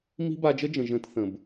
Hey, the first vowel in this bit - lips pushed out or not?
no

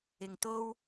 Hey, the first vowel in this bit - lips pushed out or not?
no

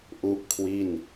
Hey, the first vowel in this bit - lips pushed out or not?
yes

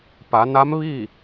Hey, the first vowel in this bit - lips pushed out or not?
no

